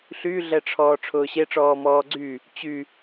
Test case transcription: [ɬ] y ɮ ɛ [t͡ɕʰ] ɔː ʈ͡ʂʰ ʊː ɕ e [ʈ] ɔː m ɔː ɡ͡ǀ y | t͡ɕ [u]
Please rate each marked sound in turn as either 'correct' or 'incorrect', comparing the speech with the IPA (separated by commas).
correct, incorrect, incorrect, incorrect